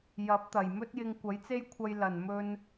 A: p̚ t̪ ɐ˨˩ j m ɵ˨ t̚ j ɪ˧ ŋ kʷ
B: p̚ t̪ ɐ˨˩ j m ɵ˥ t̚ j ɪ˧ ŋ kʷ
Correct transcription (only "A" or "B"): B